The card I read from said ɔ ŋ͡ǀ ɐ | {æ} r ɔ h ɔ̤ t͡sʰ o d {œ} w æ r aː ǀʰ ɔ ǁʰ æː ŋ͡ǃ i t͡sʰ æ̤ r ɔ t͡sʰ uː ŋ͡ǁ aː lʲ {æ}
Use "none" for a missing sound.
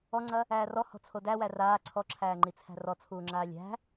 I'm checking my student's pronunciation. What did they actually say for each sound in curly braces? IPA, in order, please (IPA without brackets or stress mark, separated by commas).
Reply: æː, æ, æ̤